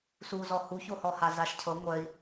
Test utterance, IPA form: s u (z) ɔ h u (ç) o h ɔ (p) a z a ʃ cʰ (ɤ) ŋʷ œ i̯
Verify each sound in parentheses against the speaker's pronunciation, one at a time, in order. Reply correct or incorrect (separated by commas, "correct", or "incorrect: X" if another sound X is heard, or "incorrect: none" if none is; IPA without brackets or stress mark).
correct, correct, incorrect: h, correct